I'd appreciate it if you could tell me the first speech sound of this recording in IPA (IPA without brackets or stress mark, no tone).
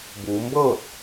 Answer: b